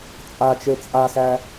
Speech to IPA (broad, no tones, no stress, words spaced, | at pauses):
t͡sʼat͡ʃe t͡sʼasæ